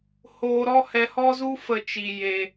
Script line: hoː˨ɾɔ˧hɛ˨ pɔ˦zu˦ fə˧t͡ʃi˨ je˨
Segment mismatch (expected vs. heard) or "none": p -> h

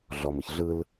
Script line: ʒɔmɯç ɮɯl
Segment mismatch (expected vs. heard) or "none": ʒ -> ɮ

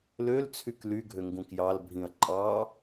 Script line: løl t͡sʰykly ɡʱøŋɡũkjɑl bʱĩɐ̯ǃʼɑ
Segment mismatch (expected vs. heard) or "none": none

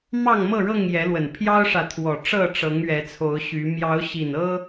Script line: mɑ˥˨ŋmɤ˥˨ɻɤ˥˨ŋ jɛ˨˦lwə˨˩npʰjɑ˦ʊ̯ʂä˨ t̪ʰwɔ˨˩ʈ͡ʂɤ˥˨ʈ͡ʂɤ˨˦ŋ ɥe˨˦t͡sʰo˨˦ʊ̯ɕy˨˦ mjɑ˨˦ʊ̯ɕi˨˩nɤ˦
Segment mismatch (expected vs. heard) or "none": e˨˦ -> ɛ˨˦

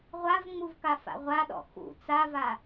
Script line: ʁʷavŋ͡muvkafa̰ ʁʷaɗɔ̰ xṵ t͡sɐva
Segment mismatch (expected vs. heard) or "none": ɐ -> a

